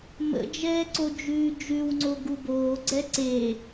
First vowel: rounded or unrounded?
unrounded